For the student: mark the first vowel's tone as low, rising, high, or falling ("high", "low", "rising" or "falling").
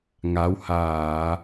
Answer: rising